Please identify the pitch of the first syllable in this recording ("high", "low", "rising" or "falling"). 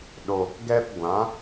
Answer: low